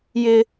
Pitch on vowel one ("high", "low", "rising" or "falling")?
high